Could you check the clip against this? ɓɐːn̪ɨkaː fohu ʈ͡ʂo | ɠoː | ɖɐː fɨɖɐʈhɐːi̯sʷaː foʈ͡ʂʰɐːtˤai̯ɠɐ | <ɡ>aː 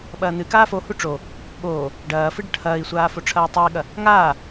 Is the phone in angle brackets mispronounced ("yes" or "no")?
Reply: yes